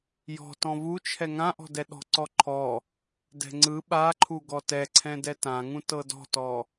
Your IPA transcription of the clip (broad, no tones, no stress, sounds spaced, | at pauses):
j ɔ̤ t ɔ̃ v u t͡ʃʰ ɛ ŋ ã ʔ ɔ̤ d ɛ ɗ ɔ̤ ǀ ɔ ǃʰ ɔ | d ɛ̤ ŋ͡ǀ ɯ ɓ a ǃʰ u ɡ ɔ t ɛ ǀʰ ɛ̃ d ɛ t ã ŋ ũ t ɤ d ɔ̤ t ɔ